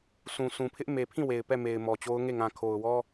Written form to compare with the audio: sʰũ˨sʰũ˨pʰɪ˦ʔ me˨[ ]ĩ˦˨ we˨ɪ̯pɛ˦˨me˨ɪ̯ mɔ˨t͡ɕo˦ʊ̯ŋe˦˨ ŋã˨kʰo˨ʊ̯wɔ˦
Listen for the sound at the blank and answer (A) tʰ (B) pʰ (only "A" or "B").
B